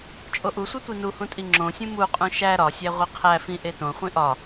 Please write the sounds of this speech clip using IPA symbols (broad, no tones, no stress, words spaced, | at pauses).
t͡ʃʼoʔusʷe tʷinuhũ tʼiŋ͡ǁõsʲũ muqʼũ ʃæ ɾɒsʲæ ʁʷiqʰæfĩ ʔetõχʷĩ ʔɒ